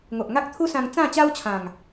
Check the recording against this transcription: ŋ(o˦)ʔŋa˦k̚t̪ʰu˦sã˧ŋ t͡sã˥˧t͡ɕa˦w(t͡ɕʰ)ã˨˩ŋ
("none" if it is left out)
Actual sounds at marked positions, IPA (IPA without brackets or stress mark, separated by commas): o˨, t͡ɕʰ